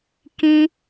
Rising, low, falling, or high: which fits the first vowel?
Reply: high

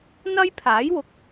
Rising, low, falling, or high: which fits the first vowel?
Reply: high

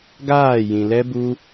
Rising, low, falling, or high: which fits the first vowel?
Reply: falling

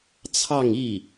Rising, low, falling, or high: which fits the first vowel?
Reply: falling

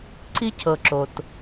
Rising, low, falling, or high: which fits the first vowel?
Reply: high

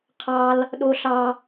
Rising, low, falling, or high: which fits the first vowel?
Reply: high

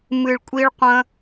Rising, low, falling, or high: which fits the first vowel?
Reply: low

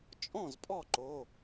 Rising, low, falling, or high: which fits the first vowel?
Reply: falling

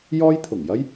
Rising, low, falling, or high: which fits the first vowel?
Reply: high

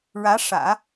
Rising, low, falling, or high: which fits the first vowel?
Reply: rising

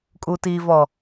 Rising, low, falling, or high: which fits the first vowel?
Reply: low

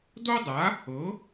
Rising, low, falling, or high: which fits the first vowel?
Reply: high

